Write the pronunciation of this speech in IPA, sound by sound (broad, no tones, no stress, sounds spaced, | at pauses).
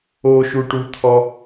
o ʃ u ʈ u t̪ʰ ɔ